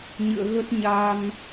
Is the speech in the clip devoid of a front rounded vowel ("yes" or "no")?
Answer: yes